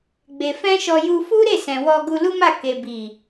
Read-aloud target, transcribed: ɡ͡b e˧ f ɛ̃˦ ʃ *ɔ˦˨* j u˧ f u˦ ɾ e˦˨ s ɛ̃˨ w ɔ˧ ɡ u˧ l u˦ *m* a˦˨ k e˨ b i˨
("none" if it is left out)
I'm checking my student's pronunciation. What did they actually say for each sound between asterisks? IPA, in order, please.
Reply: ɔ˧, m

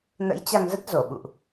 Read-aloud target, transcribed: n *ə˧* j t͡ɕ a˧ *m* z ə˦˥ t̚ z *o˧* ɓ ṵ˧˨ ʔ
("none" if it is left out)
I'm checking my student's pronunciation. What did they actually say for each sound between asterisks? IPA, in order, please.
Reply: ə̰˧˥, ŋ, o˧˩

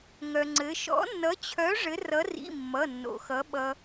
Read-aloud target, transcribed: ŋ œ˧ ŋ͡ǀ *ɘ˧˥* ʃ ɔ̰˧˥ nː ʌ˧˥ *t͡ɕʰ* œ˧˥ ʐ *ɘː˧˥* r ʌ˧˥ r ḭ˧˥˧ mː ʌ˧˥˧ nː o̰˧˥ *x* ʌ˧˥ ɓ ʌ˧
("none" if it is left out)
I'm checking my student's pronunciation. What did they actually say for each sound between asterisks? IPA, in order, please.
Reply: ɘ˧˥, t͡ɕʰ, ɘ˧˥, x

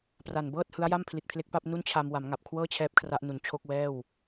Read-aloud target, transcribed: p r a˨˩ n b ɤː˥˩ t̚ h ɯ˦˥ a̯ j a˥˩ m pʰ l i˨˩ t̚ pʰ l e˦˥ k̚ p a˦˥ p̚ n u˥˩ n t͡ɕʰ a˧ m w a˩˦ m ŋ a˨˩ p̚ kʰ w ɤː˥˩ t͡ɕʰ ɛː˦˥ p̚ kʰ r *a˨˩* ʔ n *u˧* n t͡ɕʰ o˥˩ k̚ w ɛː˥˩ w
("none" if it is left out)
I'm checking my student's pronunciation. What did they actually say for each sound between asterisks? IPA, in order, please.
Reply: a˦˥, u˨˩

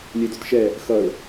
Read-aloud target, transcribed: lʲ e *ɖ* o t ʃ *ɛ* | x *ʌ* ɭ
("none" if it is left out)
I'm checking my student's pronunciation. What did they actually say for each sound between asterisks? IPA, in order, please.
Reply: d, ɛ, ʌ

